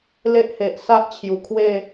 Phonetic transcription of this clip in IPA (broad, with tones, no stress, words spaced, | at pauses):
le˦ʔhe˨ʔ sa˦ʔt͡ɕʰju˨˩kʰwe˥˧